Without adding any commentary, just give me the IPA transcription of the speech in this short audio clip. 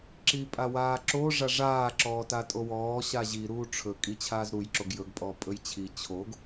ǁipʼawaːǁo ʐaʐaː ǁɔːtatʼowɔː ɕaʑi ɾuːʈ͡ʂʰɵ kʼit͡ɕʰaːzɾuj ǁoɡjɵɡ pʼɔpʼɵjt͡ɕʰi t͡ɕʰoɡ

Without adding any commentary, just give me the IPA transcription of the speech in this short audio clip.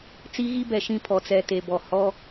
t͡si˦ɣi˦bɛ˨ʃĩ˦˨ pʰɔ˨t͡sɛ˨te˨bɔ˨ hɔ˦

